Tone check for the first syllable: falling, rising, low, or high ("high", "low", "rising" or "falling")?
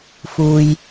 low